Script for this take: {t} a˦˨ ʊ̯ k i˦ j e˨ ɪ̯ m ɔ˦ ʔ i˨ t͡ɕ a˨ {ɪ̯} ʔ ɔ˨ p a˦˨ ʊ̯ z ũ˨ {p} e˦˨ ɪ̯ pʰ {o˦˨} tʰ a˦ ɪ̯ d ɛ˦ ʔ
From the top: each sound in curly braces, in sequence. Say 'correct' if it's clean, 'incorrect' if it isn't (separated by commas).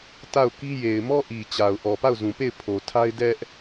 correct, incorrect, correct, incorrect